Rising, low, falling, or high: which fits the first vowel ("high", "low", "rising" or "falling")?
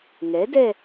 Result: rising